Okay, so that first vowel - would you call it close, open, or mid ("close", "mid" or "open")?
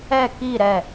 mid